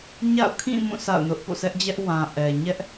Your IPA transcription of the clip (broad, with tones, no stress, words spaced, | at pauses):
ɲa̰˦˨ʊ̯ kʰĩ˦˨mũ˦˨ sʰa̰˦˨ʊ̯nʊ˦ʔ po̰˦˨sɛ˦ʔd͡ʑɛ˦ʔ wã˨ ʔɛ˨ ɲɛ˦ʔ